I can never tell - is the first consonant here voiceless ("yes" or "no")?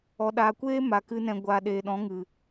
no